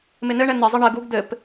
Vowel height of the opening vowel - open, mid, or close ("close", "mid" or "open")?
close